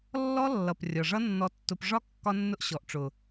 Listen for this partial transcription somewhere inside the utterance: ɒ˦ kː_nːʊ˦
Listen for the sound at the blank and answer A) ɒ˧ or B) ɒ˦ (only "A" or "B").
B